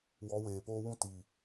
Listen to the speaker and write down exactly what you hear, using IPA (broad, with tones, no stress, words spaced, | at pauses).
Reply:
wɔ˨˦weː˨poː˦wũ˦ ti˨